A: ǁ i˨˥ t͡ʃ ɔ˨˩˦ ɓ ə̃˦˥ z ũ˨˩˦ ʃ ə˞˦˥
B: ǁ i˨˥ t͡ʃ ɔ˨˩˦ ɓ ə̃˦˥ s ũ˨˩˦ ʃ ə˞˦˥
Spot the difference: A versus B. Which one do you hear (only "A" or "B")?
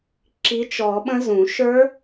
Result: A